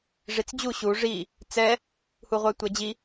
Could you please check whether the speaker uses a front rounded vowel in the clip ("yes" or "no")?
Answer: yes